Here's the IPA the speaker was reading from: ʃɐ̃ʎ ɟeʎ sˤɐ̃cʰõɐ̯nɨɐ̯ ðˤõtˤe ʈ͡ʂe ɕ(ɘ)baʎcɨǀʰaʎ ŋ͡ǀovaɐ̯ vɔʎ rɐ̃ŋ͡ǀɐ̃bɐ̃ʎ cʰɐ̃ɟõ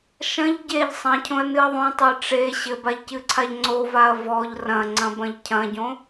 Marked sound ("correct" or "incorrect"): correct